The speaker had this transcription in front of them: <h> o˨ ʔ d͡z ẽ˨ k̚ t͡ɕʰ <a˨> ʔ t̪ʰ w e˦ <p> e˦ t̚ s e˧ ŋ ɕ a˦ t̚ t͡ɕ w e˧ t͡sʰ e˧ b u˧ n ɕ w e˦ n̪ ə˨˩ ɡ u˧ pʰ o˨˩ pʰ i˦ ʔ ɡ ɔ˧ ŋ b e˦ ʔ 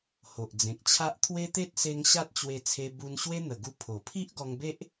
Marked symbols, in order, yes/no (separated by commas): yes, no, no